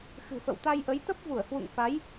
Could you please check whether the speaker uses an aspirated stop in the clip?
no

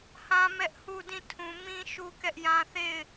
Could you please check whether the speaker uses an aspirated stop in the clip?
yes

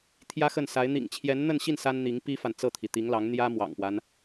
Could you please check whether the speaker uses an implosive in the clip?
no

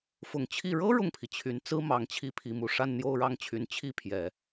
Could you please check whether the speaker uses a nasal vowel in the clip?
no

